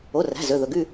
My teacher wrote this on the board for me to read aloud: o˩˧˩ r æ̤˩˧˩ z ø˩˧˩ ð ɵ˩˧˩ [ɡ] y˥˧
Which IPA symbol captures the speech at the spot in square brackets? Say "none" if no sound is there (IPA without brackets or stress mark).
ɡ